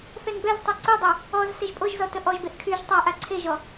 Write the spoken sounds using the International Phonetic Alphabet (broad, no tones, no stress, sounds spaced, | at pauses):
θ ɛ n b ɛ z tˤ ɛ ǀ u dˤ ɛ | ɔ z s e ʒ pʼ o ʒ z ɔ t ə ʔ ɔ ʒ b e ʔ kʰ y ʒ tˤ a ʔ a ǀʰ e ʒ ɔ